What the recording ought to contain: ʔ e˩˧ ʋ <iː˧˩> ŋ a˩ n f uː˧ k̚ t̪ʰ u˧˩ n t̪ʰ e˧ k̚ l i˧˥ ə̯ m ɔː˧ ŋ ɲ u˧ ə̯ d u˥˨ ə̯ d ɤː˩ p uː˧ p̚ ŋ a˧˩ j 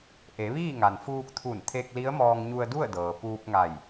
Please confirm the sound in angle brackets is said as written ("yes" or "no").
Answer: no